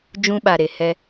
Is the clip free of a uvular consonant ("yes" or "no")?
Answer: yes